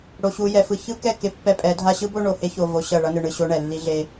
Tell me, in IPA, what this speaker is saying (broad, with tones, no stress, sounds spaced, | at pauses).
ɽ o˨ ɕ u˨ j ɛ˨ f ɯ˨ ç ɯ˦ k ɛ˦˨ k e˦ pː ɛ˦ pʼ ɛ˨˦ dʱ a˦ ɕ ɯ˦ b o˦ ɳ o˨ h e˦ ç o˨ v o˨ ɕ ʌ˦˨ ɭ ʌ˦ n ɯ˨ ɳ ɯ˨ ɕ o˦ ɳ ɛ˨ lː i˦ ɮ e˦